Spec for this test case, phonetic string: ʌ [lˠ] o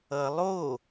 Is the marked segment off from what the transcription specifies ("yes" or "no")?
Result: no